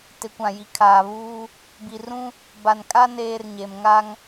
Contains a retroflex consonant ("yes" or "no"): no